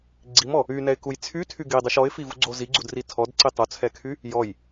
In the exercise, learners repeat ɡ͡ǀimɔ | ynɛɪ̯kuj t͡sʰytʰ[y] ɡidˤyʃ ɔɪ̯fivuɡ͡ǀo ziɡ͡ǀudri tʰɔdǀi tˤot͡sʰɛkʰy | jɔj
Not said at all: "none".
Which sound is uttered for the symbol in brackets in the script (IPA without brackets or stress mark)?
y